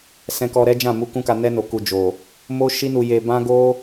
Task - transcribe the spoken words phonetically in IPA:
sɛ̃˧kɔ˧ɾɛ˦ d͡ʒã˦˨mu˧ kũ˦ka˧ nɛ˧no˨ku˨ d͡ʒo˨ | mo˦ ʃi˦nu˧je˧ bã˦ɡo˦

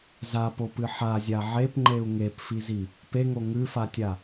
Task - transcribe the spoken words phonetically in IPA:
zapopɨ ħazʲa ʕepŋ͡ǃeu̯ ŋepfizi | peŋo ŋʉfatʲa

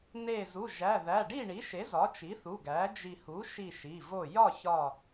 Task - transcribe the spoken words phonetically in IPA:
ne˧˩zu˩˧˩ ʒæ˩˧˩ðæ˩˧˩ ɖi˥˨ɳi˩˥ʃe˩˥ zɒ˩˥t͡ʃi˩˥θu˩˧˩ ɡæ˩˥ d͡ʒi˧˩ hu˩˥ʃi˧˩ ʃi˩˧˩ vo˧˩ jɒ˥˨çɒ˧˩

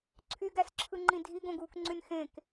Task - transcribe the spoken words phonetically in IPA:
ǀʰyɡæsǁʰɯŋ͡ǃĩ dʱiɡõɡuːkŋ͡ǀyn xẽk

